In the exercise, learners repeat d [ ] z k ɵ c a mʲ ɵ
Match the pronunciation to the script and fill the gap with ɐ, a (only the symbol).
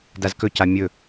a